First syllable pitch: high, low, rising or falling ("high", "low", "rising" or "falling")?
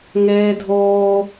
high